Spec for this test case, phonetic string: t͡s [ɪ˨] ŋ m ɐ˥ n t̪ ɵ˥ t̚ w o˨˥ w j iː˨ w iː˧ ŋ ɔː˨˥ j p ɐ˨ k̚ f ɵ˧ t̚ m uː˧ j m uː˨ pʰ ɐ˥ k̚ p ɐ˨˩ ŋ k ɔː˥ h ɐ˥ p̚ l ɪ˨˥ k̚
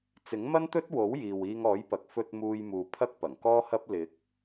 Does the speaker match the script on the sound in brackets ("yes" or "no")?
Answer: no